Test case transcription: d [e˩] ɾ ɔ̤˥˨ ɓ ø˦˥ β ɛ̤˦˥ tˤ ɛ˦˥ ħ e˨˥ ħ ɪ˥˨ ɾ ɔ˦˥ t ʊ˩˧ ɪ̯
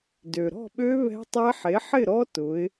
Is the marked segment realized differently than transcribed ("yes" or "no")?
yes